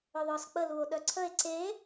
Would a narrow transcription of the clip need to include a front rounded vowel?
yes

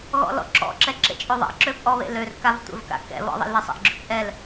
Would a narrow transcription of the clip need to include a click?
yes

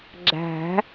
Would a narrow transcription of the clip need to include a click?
yes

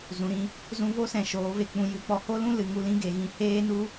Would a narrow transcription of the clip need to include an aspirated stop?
no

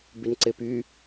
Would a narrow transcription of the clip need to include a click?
yes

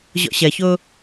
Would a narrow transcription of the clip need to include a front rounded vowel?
no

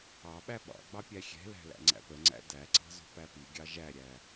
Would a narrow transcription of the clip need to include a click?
yes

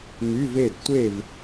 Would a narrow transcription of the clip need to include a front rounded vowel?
yes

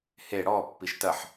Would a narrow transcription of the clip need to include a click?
no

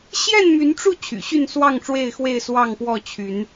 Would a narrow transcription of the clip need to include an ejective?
no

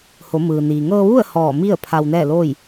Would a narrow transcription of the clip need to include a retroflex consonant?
no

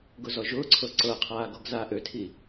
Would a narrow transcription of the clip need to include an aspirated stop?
yes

